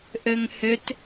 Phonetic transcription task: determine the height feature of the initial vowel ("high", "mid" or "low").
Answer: mid